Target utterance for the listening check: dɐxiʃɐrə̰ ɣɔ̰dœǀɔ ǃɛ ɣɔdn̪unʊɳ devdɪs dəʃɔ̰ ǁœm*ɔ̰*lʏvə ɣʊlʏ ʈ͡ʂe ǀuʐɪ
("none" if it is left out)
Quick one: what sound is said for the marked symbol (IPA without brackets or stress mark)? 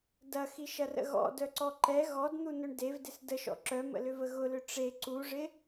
ə̰